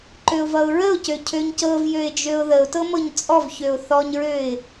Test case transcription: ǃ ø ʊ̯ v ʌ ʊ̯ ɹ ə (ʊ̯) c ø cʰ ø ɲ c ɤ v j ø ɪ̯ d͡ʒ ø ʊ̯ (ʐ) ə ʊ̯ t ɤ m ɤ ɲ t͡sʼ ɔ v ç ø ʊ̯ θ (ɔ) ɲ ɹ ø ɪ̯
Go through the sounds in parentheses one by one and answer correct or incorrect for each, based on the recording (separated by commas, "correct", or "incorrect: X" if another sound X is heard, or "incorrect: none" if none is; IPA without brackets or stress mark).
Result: correct, incorrect: ð, correct